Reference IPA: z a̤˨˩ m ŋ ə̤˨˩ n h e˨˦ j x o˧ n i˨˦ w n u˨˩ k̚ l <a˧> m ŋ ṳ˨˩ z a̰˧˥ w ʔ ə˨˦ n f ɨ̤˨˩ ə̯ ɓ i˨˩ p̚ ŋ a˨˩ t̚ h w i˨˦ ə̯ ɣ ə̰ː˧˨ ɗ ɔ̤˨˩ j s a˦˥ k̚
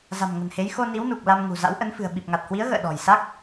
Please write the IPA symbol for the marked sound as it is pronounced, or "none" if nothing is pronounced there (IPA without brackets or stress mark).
a˧